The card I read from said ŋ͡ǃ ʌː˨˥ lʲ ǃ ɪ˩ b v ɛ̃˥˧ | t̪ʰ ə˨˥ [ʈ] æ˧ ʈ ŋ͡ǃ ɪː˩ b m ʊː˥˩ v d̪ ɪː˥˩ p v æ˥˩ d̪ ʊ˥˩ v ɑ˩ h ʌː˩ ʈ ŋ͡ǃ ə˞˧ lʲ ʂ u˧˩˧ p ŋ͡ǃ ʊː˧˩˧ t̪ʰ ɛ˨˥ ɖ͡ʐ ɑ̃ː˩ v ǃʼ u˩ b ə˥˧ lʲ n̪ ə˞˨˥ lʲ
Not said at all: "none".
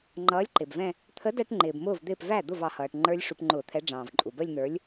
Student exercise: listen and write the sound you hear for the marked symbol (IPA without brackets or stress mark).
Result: d